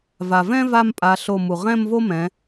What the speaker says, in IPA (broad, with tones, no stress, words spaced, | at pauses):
va˩vɛ̃˥ va˥˧mpʼa˩˧ɬo˧˩ mu˩ ʁɛ̃˥˧mvo˥mɛ̃˩˧